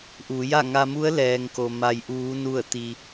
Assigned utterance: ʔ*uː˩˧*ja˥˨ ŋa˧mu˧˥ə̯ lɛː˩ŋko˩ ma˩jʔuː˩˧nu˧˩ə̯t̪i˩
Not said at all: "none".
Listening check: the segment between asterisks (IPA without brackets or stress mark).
uː˩˧